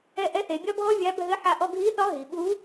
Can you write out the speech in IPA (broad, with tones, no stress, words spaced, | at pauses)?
ɛ˧ʔɛ˧˥θe˩˧ bʲɒ˥bʱɔ˥ vʲa˧˥bʱɘ˧˥ħa˧ ʔɔ˧ɡʱi˧˥θɒ˧˥ ɦi˩ɓu˧˥